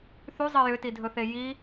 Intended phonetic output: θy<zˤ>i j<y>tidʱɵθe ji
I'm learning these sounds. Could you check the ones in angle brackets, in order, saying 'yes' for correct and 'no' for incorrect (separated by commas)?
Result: yes, no